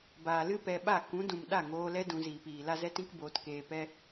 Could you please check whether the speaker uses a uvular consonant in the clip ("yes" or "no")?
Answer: no